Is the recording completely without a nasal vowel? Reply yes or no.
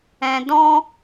no